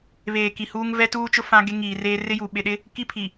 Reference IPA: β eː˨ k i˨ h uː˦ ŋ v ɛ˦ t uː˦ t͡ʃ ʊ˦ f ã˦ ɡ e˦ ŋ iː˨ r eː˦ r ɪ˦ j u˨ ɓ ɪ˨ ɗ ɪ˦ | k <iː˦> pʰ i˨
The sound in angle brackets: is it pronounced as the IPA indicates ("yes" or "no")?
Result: no